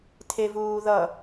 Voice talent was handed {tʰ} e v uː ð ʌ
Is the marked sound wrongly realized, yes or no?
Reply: no